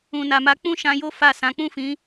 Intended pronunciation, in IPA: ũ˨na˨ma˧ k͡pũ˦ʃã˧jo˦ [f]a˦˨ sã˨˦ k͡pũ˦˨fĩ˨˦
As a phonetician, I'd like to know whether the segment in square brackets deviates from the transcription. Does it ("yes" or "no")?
no